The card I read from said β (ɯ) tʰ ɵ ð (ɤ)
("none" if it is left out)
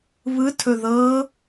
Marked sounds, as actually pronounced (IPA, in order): ɯ, ɤ

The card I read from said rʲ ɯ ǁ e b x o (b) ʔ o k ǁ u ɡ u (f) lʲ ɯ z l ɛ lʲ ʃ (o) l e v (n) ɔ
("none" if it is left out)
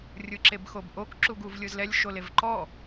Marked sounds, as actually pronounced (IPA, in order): b, v, o, ǃ

